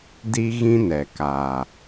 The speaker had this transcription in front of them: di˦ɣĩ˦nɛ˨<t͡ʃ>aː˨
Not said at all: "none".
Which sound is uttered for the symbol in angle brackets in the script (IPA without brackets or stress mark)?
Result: k